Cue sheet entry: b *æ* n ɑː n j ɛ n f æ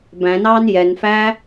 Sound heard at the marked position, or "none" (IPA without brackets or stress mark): æ̃